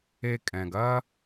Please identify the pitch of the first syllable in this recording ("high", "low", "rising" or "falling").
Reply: low